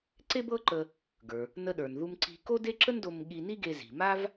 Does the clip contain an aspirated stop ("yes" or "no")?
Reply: no